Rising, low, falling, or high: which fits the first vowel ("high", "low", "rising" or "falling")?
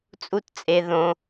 high